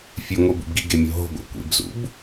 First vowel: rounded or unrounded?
rounded